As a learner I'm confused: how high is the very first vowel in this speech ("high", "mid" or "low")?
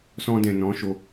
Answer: mid